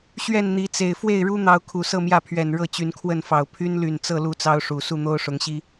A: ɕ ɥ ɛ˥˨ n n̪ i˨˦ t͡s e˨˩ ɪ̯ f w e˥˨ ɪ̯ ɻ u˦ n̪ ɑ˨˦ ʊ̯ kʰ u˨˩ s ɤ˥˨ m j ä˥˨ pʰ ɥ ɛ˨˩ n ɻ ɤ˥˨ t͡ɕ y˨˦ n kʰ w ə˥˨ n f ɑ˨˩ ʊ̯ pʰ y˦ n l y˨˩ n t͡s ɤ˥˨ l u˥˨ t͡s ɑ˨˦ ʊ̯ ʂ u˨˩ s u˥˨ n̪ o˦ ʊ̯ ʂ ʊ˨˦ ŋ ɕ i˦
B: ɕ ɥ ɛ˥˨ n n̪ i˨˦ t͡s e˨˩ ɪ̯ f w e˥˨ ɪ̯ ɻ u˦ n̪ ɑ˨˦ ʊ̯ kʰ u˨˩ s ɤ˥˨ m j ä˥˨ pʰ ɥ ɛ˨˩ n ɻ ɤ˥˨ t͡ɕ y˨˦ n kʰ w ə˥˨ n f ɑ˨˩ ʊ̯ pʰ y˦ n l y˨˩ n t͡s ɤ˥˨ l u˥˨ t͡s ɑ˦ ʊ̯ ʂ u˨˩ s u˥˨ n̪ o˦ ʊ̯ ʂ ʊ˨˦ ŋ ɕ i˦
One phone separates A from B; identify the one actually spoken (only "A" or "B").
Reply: B